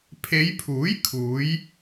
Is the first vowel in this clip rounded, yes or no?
no